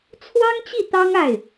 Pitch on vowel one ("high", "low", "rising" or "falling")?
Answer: high